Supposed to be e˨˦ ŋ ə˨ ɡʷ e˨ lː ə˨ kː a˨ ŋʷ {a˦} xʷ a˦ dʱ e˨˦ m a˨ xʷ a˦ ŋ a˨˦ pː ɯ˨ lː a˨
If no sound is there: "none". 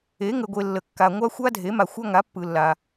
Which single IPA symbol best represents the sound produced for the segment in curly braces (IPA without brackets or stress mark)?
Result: a˦